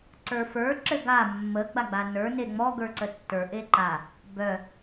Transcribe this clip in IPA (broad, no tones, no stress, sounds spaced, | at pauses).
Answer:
ǀ ə˞ f ə˞ ǁ ɘ ɡ a mː ə ɡ͡b a ɡ͡b a n ə˞ n e ŋ͡m ɔ ɡ ə˞ ǀ ə tː ə˞ ʔ e ǃ a | b œ